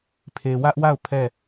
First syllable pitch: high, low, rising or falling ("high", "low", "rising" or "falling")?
low